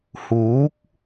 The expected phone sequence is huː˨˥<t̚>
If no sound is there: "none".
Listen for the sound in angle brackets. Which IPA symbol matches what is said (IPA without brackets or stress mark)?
k̚